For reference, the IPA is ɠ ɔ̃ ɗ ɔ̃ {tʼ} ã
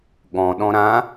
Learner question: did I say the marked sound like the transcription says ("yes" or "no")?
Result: no